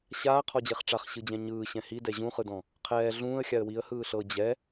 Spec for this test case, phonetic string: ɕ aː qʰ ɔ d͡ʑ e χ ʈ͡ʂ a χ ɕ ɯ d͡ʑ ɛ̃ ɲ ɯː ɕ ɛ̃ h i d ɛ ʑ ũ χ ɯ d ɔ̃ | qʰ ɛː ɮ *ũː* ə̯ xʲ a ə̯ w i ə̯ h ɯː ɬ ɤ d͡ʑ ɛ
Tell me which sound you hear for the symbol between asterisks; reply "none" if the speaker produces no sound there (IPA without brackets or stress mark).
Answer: ũː